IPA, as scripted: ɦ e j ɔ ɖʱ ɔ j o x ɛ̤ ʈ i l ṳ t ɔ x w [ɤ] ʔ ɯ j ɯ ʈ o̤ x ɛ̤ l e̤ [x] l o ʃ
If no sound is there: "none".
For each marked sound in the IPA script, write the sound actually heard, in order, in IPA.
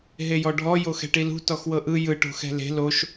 ɤ, none

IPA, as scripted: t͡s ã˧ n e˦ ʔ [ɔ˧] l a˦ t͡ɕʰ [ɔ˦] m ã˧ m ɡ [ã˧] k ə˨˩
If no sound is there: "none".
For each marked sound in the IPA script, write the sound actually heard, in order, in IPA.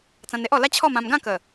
ɔ˧, ɔ˥˧, ã˥˧

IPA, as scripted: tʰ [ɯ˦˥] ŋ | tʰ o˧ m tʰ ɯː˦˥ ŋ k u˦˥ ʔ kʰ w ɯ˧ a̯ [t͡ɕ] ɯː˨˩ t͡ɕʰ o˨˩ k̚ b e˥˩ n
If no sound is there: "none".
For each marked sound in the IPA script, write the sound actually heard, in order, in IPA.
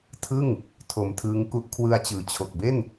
ɯ˥˩, t͡ɕ

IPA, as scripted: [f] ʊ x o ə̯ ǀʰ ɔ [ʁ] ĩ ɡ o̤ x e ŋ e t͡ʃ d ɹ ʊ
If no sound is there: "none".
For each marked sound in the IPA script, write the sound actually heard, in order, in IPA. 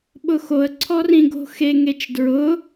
ɓ, r

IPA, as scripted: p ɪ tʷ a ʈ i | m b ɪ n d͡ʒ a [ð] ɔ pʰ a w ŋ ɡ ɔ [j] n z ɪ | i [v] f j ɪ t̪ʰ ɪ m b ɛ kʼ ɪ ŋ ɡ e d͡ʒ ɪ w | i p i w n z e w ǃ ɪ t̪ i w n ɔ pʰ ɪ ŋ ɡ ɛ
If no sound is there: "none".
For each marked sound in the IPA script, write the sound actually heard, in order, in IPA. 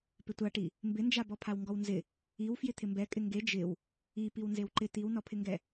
b, w, w

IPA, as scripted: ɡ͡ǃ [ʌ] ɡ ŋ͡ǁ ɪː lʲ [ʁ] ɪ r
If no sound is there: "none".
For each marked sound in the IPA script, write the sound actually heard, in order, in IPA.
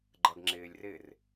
ʌ, r

